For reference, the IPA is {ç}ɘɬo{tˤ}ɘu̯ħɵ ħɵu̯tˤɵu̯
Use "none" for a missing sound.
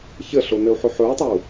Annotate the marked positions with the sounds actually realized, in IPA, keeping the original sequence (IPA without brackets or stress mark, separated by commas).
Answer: ç, n